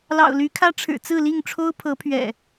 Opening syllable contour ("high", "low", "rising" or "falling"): low